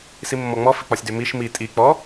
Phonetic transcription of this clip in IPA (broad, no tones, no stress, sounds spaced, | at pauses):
s i mː ɔ ŋ͡m ɔ f i k͡p ɒ sʲ d ʏ m i ʃ m i tʼ i k͡p ɔ